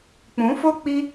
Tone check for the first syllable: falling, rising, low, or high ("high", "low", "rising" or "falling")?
rising